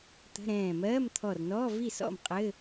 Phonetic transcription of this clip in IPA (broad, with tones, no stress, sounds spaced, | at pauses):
t̪ ə̤˧˥˧ ɾ ɛ̃ː˧˩ m ɜː˧˥˧ m t̪ʰ ɔ˧˩ r n ɔː˧˥˧ v i˥˩ s ɔ̰˥˩ m qʼ ɘ˧˥˧